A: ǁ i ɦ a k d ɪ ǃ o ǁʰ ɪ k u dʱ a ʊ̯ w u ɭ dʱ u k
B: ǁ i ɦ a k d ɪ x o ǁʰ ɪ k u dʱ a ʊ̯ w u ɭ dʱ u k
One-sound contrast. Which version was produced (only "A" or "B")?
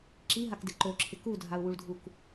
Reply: A